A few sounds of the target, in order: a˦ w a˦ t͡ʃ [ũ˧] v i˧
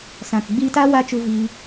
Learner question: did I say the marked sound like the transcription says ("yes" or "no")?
no